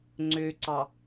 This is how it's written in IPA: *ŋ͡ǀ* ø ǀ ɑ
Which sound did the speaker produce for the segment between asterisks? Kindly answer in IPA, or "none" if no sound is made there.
ŋ͡ǀ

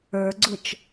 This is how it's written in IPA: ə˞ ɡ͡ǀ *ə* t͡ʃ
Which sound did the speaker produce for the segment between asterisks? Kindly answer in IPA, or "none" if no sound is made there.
ʊ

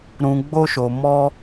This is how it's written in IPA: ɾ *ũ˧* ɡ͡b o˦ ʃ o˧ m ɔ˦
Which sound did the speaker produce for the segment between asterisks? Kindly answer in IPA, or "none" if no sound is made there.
ũ˧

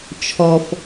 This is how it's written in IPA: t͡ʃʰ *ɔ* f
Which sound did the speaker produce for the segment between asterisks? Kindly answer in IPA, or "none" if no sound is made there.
ɔ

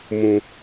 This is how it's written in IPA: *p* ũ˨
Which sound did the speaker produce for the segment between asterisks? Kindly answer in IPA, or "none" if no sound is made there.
m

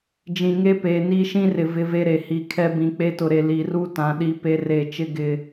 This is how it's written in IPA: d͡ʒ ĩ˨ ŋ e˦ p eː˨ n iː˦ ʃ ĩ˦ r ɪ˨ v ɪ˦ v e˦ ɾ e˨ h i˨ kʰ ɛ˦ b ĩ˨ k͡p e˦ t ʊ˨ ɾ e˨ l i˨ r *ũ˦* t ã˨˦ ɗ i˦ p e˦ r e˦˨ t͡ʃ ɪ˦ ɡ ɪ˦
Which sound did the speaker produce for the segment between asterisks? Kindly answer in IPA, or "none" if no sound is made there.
u˦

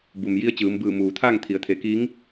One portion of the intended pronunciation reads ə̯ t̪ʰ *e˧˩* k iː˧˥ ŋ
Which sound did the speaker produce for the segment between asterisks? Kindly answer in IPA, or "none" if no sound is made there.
e˩˧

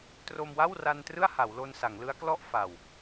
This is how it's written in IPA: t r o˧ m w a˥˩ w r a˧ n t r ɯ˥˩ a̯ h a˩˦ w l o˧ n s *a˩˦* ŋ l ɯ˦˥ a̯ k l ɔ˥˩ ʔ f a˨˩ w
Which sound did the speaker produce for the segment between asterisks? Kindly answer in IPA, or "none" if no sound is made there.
a˩˦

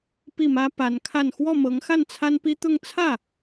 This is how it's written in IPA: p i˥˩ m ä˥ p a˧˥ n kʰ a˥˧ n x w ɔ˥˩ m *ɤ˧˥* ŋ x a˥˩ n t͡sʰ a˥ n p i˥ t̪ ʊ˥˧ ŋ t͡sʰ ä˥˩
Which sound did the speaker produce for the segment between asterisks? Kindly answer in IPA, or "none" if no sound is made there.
ɤ˧˥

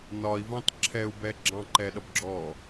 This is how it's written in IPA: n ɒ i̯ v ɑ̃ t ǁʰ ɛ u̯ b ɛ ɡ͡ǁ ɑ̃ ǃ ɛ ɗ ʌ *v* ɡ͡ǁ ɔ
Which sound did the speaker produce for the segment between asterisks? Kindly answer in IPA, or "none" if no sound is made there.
b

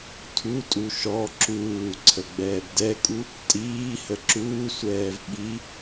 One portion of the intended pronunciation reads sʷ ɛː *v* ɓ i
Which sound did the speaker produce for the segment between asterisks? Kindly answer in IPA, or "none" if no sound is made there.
v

